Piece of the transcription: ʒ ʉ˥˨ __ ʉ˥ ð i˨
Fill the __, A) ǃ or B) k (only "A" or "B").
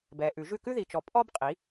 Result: B